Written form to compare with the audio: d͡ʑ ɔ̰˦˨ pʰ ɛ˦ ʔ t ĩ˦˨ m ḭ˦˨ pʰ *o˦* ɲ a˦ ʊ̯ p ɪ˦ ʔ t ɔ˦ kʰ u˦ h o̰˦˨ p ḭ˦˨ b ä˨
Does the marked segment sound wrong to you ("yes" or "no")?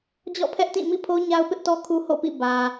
no